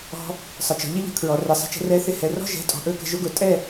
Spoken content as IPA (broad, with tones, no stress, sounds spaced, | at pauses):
ɔ̤˧ | sˤ ə˨ t͡ʃ ɔ̤˨ ʎ ɪ˦ ʎ ə̤˨ kʰ ɹ ɔ˨ r ɛ˨ sˤ ə̤˧ t͡ʃ ɛ̤˧ r ɛ˦ θ ɪ˦ h ɛ˨ r ɔ̤˦ ʒ ɛ̤˨˦ tʼ ɔ̤˨ ʔ ɵ˦ k ə̤˧ ʒ ʊ˦ ɡ ʊ˧ tʼ ɛ˦˨